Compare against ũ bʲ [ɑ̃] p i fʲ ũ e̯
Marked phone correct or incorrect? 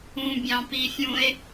correct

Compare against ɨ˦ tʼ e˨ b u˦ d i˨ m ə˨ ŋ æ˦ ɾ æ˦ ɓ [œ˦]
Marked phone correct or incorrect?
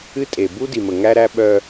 correct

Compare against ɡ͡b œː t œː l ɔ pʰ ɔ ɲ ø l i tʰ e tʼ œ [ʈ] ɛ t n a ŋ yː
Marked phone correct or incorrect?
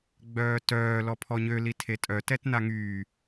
incorrect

